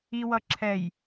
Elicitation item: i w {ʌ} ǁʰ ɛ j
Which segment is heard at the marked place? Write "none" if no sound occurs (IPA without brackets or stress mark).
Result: ʌ